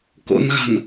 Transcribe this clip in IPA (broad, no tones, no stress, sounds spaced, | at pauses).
k o̰ n ɣ a̤ n